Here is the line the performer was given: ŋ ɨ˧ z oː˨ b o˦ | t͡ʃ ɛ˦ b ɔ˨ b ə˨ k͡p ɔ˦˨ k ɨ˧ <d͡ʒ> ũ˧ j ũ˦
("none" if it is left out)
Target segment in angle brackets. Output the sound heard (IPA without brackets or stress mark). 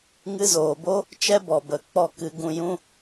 ɡ